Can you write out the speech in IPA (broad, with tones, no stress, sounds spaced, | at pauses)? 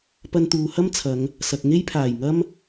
p ɐ˧ n t̪ uː˨ h ɐ˥ m t͡sʰ ɐ˨˧ ŋ | s ɐ˨ k̚ ŋ e˥ j pʰ aː˨˩ j ŋ ɐ˥ m